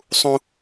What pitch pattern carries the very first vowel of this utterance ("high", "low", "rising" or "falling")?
high